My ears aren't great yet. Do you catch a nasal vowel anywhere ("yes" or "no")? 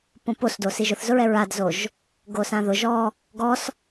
yes